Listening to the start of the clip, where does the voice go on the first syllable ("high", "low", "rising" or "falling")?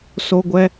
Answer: high